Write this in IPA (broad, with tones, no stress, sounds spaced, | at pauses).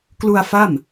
k l u˧ a̯ f a˥˩ m